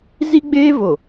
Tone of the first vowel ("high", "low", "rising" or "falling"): high